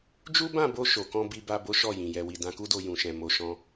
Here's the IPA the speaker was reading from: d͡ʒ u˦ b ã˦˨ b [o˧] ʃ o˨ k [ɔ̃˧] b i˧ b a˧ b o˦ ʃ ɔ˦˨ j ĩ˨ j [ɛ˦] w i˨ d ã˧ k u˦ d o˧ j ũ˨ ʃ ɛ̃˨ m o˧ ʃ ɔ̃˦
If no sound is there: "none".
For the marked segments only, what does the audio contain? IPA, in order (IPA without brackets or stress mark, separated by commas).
o˧, ɔ̃˧, ɛ˨